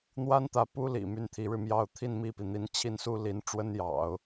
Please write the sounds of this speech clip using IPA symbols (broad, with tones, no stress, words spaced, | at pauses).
n̪wa˥nt̪ä˧˥ pu˥lḭ˨˩ my˥˩n t̪ʰi˧˥ɻɻ̩˧mjɑ˥˧ʊ̯ t̪ʰi˥˧nmi˥˩pi˩n̪i˧˥n t͡ɕʰi˥˩nsu˥ li˧˥nʈ͡ʂwə˥njɑ̰˨˩˦ʊ̯